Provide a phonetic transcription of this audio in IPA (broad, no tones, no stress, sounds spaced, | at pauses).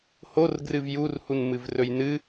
h o r ɡ r ɨ v j u r h u n m ɨ v r ɵ j n ɨ